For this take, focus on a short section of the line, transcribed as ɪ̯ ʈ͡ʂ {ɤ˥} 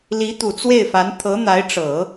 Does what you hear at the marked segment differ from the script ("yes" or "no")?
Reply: yes